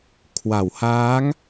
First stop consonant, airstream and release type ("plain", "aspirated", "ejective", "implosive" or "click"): aspirated